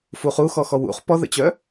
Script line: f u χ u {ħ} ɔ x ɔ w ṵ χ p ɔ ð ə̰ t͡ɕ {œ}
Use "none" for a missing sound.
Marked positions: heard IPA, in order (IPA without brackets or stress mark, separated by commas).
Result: x, œ